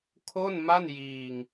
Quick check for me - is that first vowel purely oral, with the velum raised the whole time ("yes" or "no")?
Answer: yes